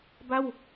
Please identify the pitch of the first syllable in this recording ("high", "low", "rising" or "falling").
falling